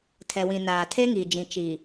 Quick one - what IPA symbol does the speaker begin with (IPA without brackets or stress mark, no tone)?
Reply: tʰ